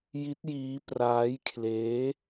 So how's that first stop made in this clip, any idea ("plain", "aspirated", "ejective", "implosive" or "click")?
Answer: plain